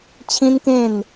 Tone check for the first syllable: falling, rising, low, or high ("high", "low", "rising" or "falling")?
high